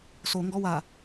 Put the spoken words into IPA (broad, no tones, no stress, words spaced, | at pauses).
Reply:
so ŋɡɔwa